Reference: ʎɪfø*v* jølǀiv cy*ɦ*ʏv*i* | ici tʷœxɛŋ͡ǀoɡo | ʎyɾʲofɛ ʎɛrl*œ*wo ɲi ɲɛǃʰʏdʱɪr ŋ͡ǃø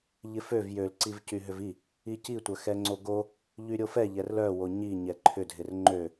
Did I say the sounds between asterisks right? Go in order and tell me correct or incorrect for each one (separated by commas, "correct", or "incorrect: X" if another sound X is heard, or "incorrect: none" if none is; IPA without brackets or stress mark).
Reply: correct, correct, correct, correct